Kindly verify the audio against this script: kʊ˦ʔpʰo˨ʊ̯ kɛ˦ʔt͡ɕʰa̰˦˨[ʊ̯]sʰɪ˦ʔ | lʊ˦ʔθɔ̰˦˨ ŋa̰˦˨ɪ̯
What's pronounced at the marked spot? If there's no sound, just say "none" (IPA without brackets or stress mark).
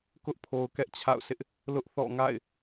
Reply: ʊ̯